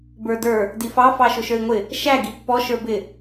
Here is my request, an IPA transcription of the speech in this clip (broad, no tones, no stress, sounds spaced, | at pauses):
b ə˞ d ə˞ | d i f ɑ f ɑ ʃ ʊ ʃ ə˞ i̯ ŋʷ ɪ | ʃ æ ɡ i pː ɔ ʃ ə˞ b ɪ